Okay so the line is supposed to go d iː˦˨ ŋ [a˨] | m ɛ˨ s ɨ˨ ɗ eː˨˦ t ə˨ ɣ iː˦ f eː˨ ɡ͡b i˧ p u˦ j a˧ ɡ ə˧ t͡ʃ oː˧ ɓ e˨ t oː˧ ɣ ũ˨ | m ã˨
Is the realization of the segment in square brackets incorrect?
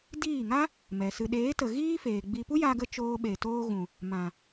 yes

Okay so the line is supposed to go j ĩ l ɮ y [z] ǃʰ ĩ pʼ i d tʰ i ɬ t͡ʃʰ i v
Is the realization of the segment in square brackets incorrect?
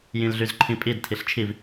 no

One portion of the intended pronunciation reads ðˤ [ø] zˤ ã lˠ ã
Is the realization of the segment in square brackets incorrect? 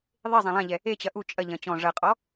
yes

